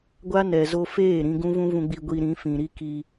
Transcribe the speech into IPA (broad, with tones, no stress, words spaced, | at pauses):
ɡʷa˦nɛ˨zo˧ feː˦˨ɾĩ˧ ɡũ˦vũ˦vũ˧ɡ͡bi˧ ɡʷi˧ɾĩ˨˦fĩ˨ ɾi˦ki˧